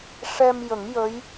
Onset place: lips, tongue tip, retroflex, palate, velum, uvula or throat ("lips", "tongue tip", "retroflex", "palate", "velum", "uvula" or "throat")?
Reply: retroflex